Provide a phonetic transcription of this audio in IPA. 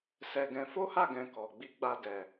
s ɛ˧ ɡ ɛ̃˧ f o˦ h a˦˨ ɡ ɛ̃˧ k ɔ˨ ɡ͡b i˧ ɡ͡b a˧ d ɛ˨

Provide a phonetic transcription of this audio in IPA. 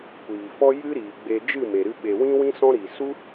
kʷ iː˨ f ɔ˦ j ɨ˦ ɾ iː˨ ɡ͡b e˧ d͡ʒ ɨ˦˨ m e˨ ɾ ɨ˧ ɓ e˨ w ĩ˦ w ĩ˦ s ɔ̃˦ ɾ iː˨ s u˦

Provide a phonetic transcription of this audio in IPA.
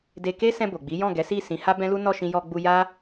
d e˧ k e˦ s ɛ̃˧ b o˨ ɡ͡b i˨˦ j ɔ̃˦˨ ɡ ɛ˨˦ s i˦˨ s ĩ˨˦ h a˦ b ɛ̃˦ l u˦ n ɔ˦˨ ʃ ĩ˧ j ɔ˧ ɡ͡b u˧ j a˦

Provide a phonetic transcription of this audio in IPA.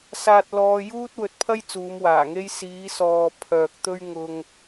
s aː˧ t̚ l ɔː˧ j uː˥ t̚ w ɵ˨ t̚ pʰ ɐ˥ j t͡s uː˨˧ m w aː˨˩ ŋ e˥ j s iː˨˧ s ɔː˨ pʰ œː˨ k̚ t̪ ɵ˥ ɥ ŋ ʊ˧ ŋ

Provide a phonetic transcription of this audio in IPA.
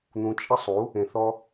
n̪ ũ˧ t͡ʃʼ ə˦ sˤ u˨˦ | ẽ˧ θ ɔ˦

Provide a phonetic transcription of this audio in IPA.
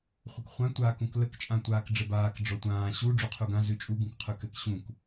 χʷ ə k χʷ ã tʷ aː k ũ k l ə k t͡ʃʼ ã tʷ aː k ɖ͡ʐ ə b aː k ɖ͡ʐ ɔ tʷ ãː ɕ u ɖ͡ʐ ʉ qʰ u ɡ ã z ʉ t͡ʃʼ u ɡ ũ k qʰ ʉ k ɘ k ɕ ũ k

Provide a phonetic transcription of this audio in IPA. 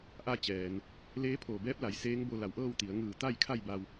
ʔ a˧ t͡ɕ ɛː˩ n | l eː˧˥ pʰ oː˧˩ b ɛː˧˥ p̚ l a˩˧ j s eː˧˥ ŋ b o˧ l a˧˩ w ʔ ɤː˥˨ w t̪ i˩˧ ə̯ ŋ ɯː˧˩ t̪ a˥˨ j kʰ a˥˨ j b a˧ w

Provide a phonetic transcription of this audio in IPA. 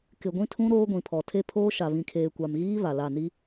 k ɪ˨ ɡʷ ĩ˦ tʰ ũ˦ ɾ oː˦ ɡʷ ĩ˨ pʰ ɔ˨ tʰ e˦ pʰ oː˦ ʃ a˨ β ĩ˨ kʰ eː˨ kʷ a˨ m ɣ iː˦ β a˨ l a˦˨ n i˦

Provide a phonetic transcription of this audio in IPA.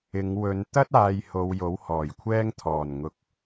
ɪ˨˧ ŋ w ɵ˨˧ n t̪ ɐ˥ t̚ aː˨ j h o˨˧ w j o˨˥ w h ɔː˨˩ j kʷʰ ɛː˥ ŋ t̪ʰ ɔː˨˩ n ŋ ʊ˨ k̚

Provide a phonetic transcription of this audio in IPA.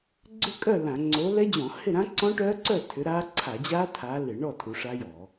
ɡ͡ǀ ʏ˥˨ kʼ œ˥˨ l ã˧˩˧ ŋ͡ǀ o˨˦ l ɛ˦˥ d͡ʑ ɔ̃˧˩˧ h ɪ˥˨ ɾ ã˦˥ ǀ ɔ̃˦˥ ʈ œː˦˥ ǀ œ˥˨ tʰ ʏ˨˦ ɾ aː˦˥ ǀʰ a˧˩˧ d͡ʑ aː˦˥ tʰ aː˨˦ l ɪ˧˩˧ ɳ ɔ˥˨ tʰ u˨˦ ʂ a˦˥ j ɔ˧˩˧

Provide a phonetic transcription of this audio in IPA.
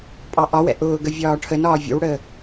pʼ ɑ ʔ ɒ w ɛ̰ ʔ ʊː ɡ ə vʲ ɒː ʈʰ ə n ɒː vʲ ə̰ w ɽ əː

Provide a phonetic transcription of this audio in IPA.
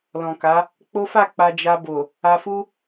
l ɔ̃˨ k a˨˦ | k͡p o˦ f a˦˨ k͡p a˧ d͡ʒ a˧ b o˨ | a˧ f u˦

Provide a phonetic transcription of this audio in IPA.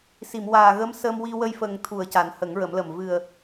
s i˨˩˨ m w aː˨˩ ɣ ə˧˥ m s ə˧ m w i˧ w ə˧ j f ə˨˩ ŋ t̪ʰ u˨˩˨ ə̯ c a˨˩˦ n h ə˨˩˦ ŋ ɹ ə˨˩˦ m l ə˨˩ m v ɨ˨˩ ə̯

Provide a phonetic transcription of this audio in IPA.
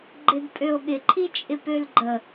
ɡ͡ǃ ɪ d pʼ ø o̯ ɠ ɪ ǃʰ i t͡ʃʼ ɪ p ø l ɡ͡ǃ ə

